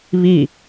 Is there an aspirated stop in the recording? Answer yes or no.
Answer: no